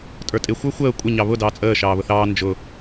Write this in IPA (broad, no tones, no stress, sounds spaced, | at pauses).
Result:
tʼ ə˞ tʼ ɪ xʷ ə˞ xʷ əː kʷʼ ə ɲ ɑ β ʊ d ɑː t͡sʼ əː ʃ ɑː β ʊ θ ɑː n d͡ʒ ʊ